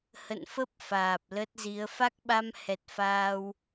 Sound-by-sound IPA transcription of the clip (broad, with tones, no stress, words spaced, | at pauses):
hə̰˧˨nfə˦˥p̚ faː˨˩p̚lə˦˥t̚zi˨˦ə̯ fa˦˥k̚ɓa˧m hɛ˨˩t̚faː˧w